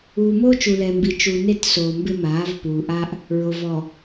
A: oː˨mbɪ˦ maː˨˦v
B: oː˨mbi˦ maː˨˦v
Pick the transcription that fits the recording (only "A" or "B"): A